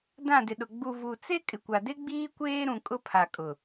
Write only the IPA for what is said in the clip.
dã˦˨dɪ˨ɗʊ˨ ɡ͡bu˨ vu˨t͡se˦ kʼɪ˨kʷa˨de˦ ɡ͡biː˦kʷeː˦ɾũ˨ kʼʊ˦pʰa˨kʼʊ˨

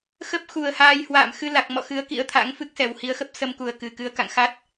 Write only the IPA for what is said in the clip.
xə˦˥p̚xu˨˩ə̯haː˧jhwa̰ː˧˨m xɨ˧la˨˩k̚mɔ̰˧˨ xɨ˨˦ə̯kḭ˧˥ə̯t̪ʰa̰˧˥ŋ fɨ˦˥k̚sɛ˨˩whi˨˦ə̯ xə˦˥p̚sə˧mku˨˩ə̯ kɨ˨˩ kɨ˨˦ə̯ka̰˧˨ŋ xa˦˥t̚

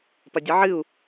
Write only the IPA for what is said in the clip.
pɐdʲɨʕɨu̯

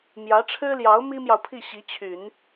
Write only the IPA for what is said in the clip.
mjä˧˥ʈ͡ʂʰɻ̩˥ljɑ˧˥ʊ̯ mi˥mjɑ˨ʊ̯pʰi˥˩ ɕi˧˥t͡ɕʰy˨˩˦n

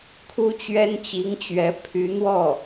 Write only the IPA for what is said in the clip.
kʰu˥t͡ɕɥɛ˥nt͡ɕi˧˥ŋt͡ɕɥɛ˧˥ pʰy˧˥n̪wɔ˥˩

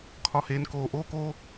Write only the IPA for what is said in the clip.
kʰɒ˨heː˨n koː˨ ʔoː˦koː˦

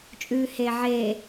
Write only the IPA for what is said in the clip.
t͡ʃʼʉːheːʕeː

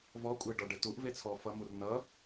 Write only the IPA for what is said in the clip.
vɔkʷʼeɖɔɖɘ tuʔvet͡sʰɔ fʌmur nʌ

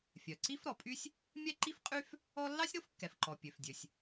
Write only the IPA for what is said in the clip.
fʲœ˩ǀi˥fɾɔ˩pʼy˥sʲ | mʲɛ˥ǃi˥fqʼy˥f | ɔ˥ lːɑ˥sʲɾo˥f kːɛ˩fǃɔ˩ pʲø˩fdʲø˩sʲ

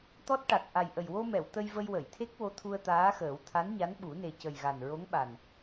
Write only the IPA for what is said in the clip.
t̪ɔ˦˥t̚ʈa˨˩k̚ ʔa˨˩jʔə˨˩jwo˧mɛ˨˩˨w t̪ə˧jvə˧j wə˨˩˨jt̪ʰe˦˥k̚ wo˧˥t̪ʰu˧ə̯t̪aː˧˥xəː˨˩˦w t̪ʰa˧˥nɲa˧˥nɓu˨˩˦ ne˨˩cə˨˩j ɣa˨˩nɹo˧˥ŋɓa˨˩n

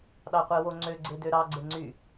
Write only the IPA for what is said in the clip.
ɗɑqʷewoŋ͡ǀø ɡ͡ǀedøɾɑ ɡ͡ǀeŋ͡ǀy

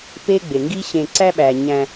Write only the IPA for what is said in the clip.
pe˦ɡ͡be˩ ŋɡi˦ɕẽ˨ ǀæ˥ɓæ˩ ɲæ̃˨

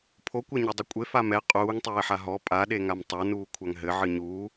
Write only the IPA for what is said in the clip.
pʰokʷɛɲɐdˤɘ kʷʼe famɛ qʼuːŋ tˤeːħaɦɔ pʼaɗe ŋamtˤanuː kʷʰaŋɦɘ ʕɨɲuː

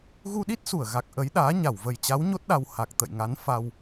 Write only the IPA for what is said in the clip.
ɣu˧ɗi˦˥t̚su˧˩ə̯ɣa˨˩k̚ ʔə˨˦jɗaː˨˦ ɲa˧˩wvə˨˩jt͡ɕa˨˦w ɲo˦˥t̚ɗa˧w ha˨˩k̚ t̪ə̰˧˨jŋa˨˦n fa˧w

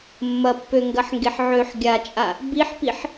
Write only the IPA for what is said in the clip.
mːɐpːøŋɡɐħŋɡeħ ʕøħ ɡʲat͡ʃʼa | biħpiħ

